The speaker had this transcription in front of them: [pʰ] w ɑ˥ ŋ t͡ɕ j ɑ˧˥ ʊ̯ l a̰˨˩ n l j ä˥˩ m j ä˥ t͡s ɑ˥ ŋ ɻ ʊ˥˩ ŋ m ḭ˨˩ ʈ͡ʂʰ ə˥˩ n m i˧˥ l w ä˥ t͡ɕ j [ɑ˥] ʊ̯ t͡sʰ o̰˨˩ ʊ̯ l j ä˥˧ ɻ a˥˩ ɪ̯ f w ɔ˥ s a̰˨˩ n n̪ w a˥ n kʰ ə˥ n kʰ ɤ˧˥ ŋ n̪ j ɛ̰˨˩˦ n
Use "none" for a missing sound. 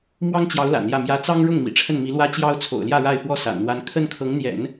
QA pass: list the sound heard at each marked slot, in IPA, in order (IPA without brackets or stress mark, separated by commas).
m, ɑ˥